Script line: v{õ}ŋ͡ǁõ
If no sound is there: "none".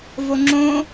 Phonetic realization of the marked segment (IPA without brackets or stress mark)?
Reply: o